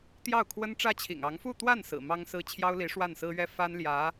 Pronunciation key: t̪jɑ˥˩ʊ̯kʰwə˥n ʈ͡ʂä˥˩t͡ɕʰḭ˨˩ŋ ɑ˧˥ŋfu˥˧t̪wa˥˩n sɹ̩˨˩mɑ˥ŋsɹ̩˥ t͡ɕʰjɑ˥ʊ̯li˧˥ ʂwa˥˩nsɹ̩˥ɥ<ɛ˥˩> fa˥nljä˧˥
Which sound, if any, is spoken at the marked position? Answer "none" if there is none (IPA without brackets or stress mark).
ɛ˥